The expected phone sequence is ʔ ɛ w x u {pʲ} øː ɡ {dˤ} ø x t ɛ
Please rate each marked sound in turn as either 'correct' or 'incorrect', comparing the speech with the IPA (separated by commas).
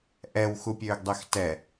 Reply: correct, correct